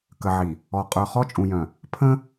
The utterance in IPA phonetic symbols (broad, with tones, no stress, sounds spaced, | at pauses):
k ə˨ ʕ i˨ | ɔ˨ qʼ ə˞˨ χ ɔ˦ t͡ʃʼ ũ˨ j œ̃˨ | pʰ ə̃˦